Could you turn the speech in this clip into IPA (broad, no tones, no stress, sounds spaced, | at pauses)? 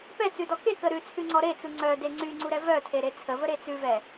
p ɛ t͡s ʉ d ɔ k e k ə ɾ ʉ t͡sʰ ʉ ŋ͡ǀ ɔ ɾ e t͡s u ŋ͡ǀ œ d e ŋ͡ǀ y ŋ͡ǀ u ɾ ɛ v œ tʰ e ɾ e t͡sʰ ə v ə ɾ e t͡s ʉ v ɛ